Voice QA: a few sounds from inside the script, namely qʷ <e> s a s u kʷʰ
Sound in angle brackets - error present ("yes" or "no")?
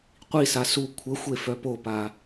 yes